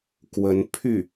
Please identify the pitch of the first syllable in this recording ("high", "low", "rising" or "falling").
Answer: rising